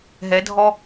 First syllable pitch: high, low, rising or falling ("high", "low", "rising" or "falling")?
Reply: rising